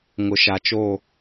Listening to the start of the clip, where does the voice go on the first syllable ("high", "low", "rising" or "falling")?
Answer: low